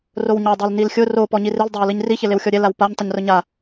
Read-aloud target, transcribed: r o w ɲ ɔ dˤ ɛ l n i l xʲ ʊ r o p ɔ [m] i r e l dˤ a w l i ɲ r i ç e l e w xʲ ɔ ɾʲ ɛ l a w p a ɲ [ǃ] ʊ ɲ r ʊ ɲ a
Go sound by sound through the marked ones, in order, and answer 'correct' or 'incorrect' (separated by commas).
incorrect, incorrect